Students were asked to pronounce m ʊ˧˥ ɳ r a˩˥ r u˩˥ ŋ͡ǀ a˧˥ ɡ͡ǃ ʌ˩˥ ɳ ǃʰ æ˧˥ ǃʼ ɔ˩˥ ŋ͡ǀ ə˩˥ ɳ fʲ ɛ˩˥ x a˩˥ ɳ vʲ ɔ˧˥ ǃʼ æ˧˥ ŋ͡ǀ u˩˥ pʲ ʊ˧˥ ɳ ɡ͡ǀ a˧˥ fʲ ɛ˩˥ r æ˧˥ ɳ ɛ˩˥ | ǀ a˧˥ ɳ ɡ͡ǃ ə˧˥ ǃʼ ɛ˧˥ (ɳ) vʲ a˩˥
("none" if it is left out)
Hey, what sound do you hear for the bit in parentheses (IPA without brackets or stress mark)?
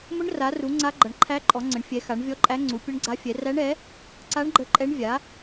ɳ